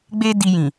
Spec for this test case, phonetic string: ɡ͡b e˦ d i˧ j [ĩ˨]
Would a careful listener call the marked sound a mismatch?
no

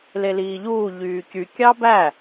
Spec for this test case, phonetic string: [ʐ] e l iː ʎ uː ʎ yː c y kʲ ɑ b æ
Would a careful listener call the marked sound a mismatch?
yes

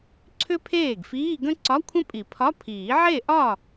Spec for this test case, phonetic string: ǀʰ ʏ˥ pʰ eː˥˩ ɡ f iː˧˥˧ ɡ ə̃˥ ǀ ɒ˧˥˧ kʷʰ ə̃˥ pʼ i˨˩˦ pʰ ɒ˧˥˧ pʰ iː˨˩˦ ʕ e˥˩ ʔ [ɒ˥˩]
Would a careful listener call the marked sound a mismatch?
no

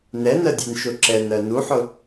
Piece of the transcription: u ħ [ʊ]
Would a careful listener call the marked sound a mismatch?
no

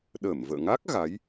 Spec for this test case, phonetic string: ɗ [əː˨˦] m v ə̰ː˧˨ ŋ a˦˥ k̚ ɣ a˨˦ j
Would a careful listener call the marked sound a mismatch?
yes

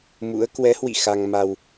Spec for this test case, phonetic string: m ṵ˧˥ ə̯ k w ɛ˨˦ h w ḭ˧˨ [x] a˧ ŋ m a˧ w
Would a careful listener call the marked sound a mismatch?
no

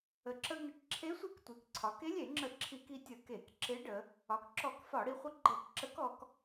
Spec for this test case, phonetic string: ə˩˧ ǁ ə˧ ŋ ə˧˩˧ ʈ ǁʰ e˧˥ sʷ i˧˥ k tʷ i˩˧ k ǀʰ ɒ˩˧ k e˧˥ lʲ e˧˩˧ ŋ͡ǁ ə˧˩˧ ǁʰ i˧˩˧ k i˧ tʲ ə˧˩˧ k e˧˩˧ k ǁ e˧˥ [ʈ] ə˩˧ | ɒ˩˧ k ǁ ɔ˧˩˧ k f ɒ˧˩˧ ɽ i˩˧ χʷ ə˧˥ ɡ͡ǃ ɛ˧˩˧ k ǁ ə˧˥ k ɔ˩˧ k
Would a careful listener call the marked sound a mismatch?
yes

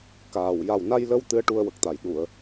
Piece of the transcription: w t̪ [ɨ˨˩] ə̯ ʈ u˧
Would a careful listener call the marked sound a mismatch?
yes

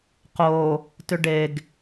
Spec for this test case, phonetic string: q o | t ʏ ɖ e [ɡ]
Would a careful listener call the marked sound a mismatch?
no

